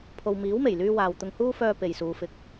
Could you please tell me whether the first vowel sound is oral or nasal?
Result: oral